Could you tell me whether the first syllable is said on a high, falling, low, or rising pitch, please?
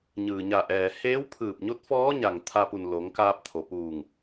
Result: low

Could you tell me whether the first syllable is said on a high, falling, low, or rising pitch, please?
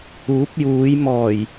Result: rising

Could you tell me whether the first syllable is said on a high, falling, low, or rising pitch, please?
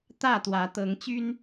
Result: falling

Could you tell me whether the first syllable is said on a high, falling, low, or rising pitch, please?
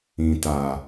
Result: low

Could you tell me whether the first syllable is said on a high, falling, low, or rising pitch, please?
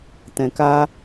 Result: low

